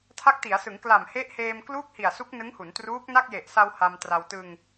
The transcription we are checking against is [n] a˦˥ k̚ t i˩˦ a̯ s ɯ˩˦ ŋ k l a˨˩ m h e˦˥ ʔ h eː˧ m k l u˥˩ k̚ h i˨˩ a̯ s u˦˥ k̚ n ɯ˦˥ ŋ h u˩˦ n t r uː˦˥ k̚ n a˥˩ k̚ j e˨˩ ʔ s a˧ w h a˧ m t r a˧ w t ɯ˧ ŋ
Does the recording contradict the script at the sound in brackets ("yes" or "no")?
yes